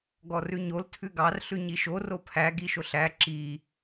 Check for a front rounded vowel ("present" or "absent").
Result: absent